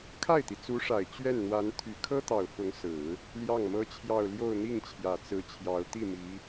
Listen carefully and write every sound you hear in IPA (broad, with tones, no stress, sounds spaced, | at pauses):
kʰ a˥˩ ɪ̯ t̪ i˩ t͡s u˧˥ ʂ a˨˩ ɪ̯ t͡ɕ ɥ ɛ˥˩ n n̪ w a˧˥ n t̪ʰ y˨˩ kʰ ɤ˥ t̪ ɑ˨˩ ʊ̯ f ʊ˧˥ ŋ s ɹ̩˨˩˦ | l j ɑ˥˩ ŋ m ɤ˥ t͡ɕʰ j ɑ˥˧ ʊ̯ l j o˥˧ ʊ̯ n̪ i˥˩ ŋ t͡ɕʰ j ä˨˩ t͡s ɹ̩˧˥ t͡ɕʰ j ɑ˧˥ ʊ̯ t̪ i˥˩ m i˧˥